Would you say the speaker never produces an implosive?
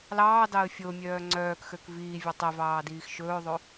yes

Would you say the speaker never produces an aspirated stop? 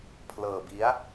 no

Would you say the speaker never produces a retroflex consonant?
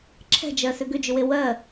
yes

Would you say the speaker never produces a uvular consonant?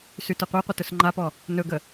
no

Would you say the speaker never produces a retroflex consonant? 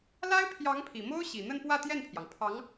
yes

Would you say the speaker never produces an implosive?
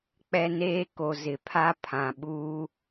no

